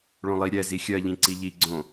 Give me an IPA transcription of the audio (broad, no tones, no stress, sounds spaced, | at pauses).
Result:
ɭ õ lˠ i ɾʲ ɛ z i xʲ ɜ ʎ ĩ ǀ i ʎ i ɡ͡ǀ õ